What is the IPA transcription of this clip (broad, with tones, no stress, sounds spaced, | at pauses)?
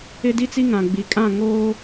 ɪ˦ d i˦ t͡s i˦ ŋ ã˨ ɡ͡b i˨ kʼ ã˦˨ ŋ oː˦